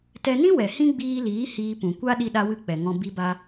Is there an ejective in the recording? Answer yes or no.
no